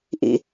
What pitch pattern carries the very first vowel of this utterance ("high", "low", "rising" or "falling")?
low